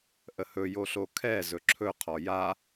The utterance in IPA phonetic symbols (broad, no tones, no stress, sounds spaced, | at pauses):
ʔ ə h ɵ j o ɬ o kʰ ɛ z ɵ ǁʰ ɵ qʰ ɔ j a